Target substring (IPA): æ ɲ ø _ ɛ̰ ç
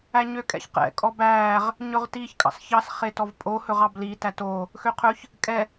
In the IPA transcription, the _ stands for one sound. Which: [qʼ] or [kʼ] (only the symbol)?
kʼ